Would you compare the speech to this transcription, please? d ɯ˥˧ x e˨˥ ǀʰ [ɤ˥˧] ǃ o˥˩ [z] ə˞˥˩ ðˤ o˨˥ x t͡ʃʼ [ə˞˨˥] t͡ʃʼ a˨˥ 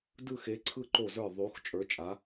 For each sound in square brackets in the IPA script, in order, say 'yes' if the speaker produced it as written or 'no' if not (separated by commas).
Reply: no, yes, yes